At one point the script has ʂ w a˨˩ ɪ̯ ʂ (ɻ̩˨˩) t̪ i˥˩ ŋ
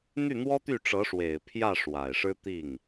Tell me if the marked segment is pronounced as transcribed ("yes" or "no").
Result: no